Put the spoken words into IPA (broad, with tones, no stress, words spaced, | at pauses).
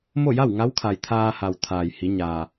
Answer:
mo˥˨ja˥˨wŋa˧˥wkʰa˩j t̪ʰaː˧ha˩w t̪ʰaː˩jhi˩˧ɲaː˩